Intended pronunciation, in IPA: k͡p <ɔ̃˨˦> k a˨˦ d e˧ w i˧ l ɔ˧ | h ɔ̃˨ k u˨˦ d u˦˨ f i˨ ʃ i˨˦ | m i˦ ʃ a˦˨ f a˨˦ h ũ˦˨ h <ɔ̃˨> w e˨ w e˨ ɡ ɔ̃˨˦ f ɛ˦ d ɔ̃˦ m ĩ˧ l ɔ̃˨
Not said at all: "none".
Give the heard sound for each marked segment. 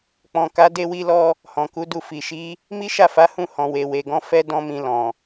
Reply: ɔ̃˨, ɔ̃˨

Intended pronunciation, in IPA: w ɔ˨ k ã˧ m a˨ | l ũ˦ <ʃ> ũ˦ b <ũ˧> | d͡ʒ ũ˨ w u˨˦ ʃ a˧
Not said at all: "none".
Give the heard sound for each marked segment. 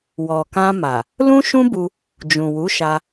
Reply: ʃ, u˧

